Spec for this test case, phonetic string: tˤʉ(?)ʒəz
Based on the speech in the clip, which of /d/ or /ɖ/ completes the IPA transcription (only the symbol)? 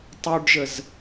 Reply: ɖ